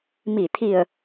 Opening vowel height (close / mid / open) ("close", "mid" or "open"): close